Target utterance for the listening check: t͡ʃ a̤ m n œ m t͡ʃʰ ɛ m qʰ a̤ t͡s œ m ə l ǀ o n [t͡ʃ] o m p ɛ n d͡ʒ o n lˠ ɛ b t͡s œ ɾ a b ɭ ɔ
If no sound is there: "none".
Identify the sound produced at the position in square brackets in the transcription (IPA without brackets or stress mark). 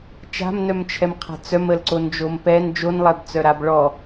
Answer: d͡ʒ